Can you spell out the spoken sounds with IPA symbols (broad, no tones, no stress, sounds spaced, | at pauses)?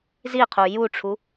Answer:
z i qʰ u j u ʈ͡ʂʰ u